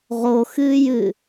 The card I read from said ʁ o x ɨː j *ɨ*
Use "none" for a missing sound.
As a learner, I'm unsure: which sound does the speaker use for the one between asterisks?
ɨ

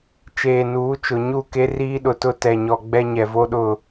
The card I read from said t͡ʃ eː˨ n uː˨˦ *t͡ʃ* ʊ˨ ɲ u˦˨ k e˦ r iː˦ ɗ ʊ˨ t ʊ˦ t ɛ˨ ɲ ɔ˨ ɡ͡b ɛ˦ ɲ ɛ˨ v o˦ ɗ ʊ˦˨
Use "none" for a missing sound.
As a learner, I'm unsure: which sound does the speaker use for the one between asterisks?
t͡ʃ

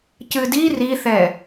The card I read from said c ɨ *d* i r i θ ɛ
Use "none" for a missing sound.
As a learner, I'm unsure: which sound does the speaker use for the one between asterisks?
d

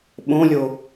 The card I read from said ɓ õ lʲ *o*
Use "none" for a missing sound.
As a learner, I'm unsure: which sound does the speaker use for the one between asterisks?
o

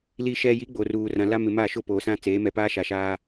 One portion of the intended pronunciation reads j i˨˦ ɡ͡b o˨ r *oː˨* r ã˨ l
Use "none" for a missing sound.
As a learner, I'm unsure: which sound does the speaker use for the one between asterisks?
uː˨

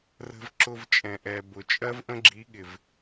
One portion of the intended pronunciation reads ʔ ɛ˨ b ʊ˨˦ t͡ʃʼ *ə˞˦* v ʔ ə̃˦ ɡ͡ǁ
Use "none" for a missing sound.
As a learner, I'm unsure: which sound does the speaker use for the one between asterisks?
ɜ˦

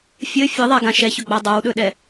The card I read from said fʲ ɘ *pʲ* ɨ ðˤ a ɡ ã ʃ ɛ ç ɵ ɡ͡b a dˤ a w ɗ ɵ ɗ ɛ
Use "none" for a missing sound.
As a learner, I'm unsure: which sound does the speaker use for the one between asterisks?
fʲ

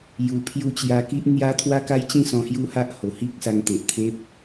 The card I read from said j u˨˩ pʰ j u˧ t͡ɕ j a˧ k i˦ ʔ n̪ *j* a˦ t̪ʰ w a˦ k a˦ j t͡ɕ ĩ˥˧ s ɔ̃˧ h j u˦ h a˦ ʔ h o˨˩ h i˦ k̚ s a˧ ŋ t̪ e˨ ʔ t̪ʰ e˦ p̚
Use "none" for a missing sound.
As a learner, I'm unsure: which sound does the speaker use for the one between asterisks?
j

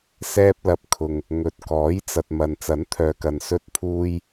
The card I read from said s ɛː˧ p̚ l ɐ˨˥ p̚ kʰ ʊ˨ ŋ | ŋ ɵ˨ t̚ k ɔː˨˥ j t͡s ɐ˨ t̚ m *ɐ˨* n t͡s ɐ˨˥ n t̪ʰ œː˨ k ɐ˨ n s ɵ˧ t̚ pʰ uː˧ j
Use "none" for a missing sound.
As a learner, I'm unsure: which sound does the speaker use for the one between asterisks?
ɐ˨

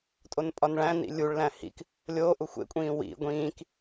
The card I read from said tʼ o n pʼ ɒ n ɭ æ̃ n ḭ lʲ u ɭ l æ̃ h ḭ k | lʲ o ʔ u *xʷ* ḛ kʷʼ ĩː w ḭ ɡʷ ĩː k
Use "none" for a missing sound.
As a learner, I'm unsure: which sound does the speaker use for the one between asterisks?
xʷ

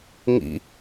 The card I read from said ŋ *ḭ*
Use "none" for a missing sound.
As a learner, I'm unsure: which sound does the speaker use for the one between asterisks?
ḭ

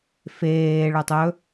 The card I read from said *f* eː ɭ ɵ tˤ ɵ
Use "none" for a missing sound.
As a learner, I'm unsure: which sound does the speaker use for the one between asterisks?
f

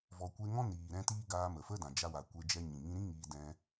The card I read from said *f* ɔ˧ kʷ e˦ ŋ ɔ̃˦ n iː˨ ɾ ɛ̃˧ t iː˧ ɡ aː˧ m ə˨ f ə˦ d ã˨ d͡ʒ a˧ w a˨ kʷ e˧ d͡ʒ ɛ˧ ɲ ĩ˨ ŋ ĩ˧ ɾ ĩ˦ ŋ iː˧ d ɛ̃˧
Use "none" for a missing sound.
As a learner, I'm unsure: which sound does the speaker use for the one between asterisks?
v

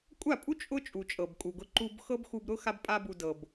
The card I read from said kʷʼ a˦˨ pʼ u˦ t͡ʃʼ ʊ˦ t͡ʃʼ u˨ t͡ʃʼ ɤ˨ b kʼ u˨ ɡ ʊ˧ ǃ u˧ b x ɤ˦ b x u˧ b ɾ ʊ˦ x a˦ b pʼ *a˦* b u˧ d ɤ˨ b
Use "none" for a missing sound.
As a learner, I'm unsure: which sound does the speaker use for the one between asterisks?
a˦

